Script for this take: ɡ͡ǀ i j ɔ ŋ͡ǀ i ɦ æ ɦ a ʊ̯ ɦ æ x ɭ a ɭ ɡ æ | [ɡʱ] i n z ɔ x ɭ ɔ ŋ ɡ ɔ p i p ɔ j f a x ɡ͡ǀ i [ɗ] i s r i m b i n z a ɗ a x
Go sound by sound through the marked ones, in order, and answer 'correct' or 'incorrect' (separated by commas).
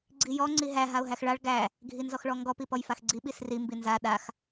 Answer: correct, incorrect